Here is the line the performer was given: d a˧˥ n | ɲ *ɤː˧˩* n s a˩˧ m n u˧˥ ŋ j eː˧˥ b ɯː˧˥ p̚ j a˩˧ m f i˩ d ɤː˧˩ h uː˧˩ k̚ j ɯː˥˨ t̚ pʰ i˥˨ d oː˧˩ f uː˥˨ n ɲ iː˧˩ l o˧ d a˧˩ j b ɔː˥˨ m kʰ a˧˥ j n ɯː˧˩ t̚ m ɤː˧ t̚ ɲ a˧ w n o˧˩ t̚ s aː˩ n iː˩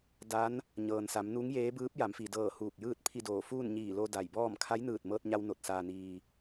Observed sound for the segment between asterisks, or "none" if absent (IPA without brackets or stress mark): ɤː˩